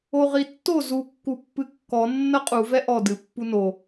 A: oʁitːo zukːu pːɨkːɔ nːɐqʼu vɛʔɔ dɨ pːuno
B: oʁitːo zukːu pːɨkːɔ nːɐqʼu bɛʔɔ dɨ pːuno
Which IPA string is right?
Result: A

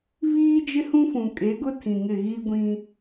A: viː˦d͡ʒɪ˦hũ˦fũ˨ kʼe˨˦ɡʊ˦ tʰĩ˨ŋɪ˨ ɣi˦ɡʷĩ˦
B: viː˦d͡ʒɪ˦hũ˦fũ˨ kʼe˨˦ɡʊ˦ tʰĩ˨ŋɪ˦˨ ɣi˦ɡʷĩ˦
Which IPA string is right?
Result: B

